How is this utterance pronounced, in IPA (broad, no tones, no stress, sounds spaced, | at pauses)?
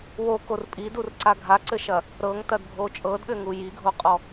w o k o r pʼ i d u r ǀ a ɡʱ a ǀ ɘ ʃ ɐ | ɾ ɤ ŋ t ɐ d bʱ o t͡ʃʼ ɤ d ɠ ɘ ŋ u j i ɡʱ o qʼ ɔ